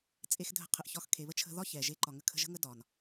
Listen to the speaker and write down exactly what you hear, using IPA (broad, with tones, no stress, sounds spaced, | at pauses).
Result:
t͡sʼ e˧ x dʱ ə̤˧ qʰ ə˨ ʔ ç ɒ˧ x kʰ e˨ β ə˦ t͡ʃʰ ə̤˧ ð ɒ˦ ç ɛ˨ ʒ e˧ ǃ ɒ˨ ŋ ə˧ kʰ ə̤˧ ʒ ə̤˦ ŋ ə˦ d ɒ˨ n